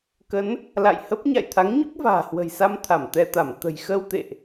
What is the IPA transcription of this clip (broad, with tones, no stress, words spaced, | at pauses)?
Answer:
kə˨˦n | la̰˧˨jhə˦˥p̚ ɲa̰˧˨jt̪ʰa˨˦ŋɲu˦˥k̚ va̤ː˨˩hwə̤˨˩jsa˧m t̪ʰa˧˩mt̪ɛ˧t̪a˧˩m t̪ə̤˨˩jxə˧wt̪ḛ˧˨ʔ